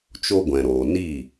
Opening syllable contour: high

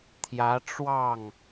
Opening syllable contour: rising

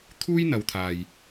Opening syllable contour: high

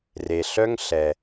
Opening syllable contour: low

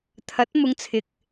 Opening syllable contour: rising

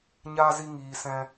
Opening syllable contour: high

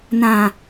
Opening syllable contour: low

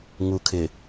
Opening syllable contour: low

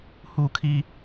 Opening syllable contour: falling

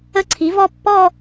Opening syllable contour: high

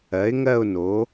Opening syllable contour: rising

